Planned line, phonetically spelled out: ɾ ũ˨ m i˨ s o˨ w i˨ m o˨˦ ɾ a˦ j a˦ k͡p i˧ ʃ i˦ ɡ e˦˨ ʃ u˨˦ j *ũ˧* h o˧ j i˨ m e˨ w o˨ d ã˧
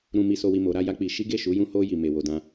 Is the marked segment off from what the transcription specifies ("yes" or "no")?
no